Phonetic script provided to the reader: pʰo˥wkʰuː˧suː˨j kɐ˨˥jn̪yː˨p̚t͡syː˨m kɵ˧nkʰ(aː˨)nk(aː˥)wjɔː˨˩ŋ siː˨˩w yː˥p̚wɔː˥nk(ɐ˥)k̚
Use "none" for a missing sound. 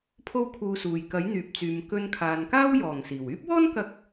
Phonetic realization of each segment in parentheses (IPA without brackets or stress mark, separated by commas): aː˨, aː˥, ɐ˧